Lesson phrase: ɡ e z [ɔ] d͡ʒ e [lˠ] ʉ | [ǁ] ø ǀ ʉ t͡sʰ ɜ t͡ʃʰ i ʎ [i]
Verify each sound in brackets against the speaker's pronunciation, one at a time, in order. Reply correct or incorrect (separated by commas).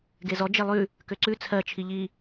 correct, correct, incorrect, correct